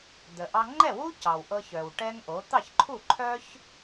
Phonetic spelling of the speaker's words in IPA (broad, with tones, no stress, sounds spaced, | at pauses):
d̪ ə˩ ʔ ɑ˧ ŋ͡ǃ ɛ˥˩ w u˥ c ɑ˩ w ʔ ɤ˧ ç œ˩ w ʈ ɛ˥ ŋ ʔ o˩˥ t̪ ɑ˥˩ ç ǃʰ u˥˩ ǃʰ œ˥ ç